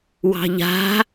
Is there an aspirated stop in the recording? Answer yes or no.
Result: no